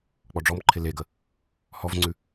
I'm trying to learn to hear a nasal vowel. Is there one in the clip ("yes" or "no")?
no